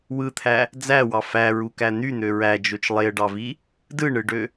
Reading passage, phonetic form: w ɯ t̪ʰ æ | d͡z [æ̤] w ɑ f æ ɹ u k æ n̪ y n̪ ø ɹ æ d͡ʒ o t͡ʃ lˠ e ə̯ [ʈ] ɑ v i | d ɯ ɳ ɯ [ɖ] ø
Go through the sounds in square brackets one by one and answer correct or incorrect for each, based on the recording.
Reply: incorrect, incorrect, correct

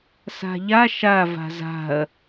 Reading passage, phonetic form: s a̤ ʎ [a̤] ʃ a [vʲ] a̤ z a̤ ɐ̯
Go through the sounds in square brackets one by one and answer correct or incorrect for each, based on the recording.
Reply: incorrect, incorrect

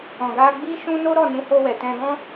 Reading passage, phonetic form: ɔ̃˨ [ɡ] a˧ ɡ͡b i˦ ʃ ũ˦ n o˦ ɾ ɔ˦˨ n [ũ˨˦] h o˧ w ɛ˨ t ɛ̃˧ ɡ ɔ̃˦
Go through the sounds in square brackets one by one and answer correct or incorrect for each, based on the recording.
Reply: correct, correct

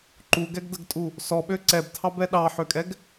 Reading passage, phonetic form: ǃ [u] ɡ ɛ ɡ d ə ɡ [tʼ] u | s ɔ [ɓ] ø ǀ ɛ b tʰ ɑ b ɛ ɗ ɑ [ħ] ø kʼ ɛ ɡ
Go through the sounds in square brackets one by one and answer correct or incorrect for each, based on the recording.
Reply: correct, correct, correct, correct

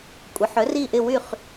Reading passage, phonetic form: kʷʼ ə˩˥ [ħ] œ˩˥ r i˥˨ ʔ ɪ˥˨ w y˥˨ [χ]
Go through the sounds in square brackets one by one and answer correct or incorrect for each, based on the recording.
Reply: correct, correct

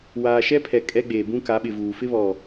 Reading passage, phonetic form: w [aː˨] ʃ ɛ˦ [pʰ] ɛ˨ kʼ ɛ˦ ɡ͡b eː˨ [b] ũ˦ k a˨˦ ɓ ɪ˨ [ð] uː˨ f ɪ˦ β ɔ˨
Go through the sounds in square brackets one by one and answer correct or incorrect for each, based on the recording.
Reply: correct, correct, correct, incorrect

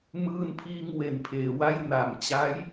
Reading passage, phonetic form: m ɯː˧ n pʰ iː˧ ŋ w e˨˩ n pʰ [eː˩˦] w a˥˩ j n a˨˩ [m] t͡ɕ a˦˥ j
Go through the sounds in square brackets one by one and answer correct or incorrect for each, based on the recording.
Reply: correct, correct

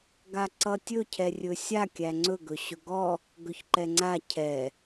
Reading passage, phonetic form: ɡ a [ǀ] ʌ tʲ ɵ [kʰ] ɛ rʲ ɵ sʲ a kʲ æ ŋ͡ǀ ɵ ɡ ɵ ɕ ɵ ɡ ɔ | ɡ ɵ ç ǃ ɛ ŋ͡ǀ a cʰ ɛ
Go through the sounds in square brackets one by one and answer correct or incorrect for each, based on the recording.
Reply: correct, incorrect

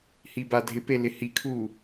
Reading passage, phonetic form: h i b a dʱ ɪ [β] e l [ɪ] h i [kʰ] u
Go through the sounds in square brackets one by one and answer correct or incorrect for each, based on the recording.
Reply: incorrect, correct, correct

